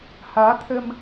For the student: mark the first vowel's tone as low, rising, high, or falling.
rising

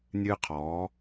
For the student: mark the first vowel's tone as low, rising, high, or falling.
high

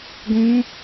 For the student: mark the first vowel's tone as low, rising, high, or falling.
rising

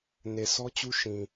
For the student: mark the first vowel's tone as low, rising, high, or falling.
low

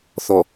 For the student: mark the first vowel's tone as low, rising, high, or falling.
low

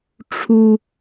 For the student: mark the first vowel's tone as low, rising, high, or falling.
high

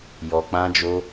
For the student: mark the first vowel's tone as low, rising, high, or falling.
low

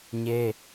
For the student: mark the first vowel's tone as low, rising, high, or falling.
high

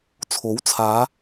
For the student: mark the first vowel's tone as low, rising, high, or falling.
rising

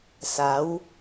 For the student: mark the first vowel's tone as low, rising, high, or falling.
rising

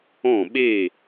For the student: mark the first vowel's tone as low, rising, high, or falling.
falling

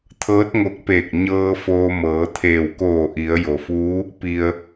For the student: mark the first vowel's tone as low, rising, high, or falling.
rising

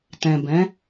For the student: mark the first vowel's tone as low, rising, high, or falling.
low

